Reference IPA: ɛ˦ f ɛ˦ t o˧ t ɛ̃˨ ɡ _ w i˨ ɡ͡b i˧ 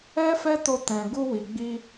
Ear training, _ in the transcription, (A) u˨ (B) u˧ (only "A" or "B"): B